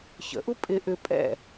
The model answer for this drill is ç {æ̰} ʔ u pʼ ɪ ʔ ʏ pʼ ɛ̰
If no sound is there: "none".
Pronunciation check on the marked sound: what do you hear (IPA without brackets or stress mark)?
ə̰